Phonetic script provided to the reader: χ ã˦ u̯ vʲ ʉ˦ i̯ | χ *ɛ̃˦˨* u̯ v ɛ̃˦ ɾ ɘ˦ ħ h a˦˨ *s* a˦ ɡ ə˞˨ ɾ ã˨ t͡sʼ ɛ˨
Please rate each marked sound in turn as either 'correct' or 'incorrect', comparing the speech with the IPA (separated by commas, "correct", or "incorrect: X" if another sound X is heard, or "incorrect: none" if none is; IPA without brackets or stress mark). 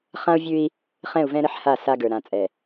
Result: correct, correct